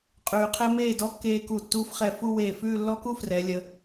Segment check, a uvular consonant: present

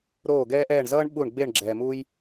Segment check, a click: present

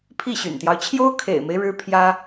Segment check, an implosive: absent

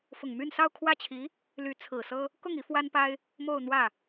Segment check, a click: absent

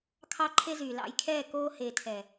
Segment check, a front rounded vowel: present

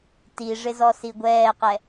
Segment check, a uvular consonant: present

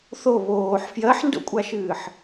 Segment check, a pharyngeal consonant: present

